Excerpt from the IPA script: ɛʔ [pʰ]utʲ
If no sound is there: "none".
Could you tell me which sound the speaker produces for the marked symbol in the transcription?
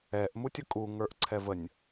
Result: m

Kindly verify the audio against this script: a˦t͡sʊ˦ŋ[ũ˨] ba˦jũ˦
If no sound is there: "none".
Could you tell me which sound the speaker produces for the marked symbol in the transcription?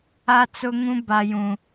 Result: ũ˦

